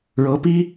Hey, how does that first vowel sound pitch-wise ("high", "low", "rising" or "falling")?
rising